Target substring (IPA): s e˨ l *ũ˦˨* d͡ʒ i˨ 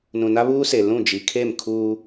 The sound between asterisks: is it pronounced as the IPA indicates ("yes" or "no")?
yes